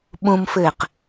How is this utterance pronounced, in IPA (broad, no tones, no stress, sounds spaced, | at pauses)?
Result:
ɓ ũ m f ɘː q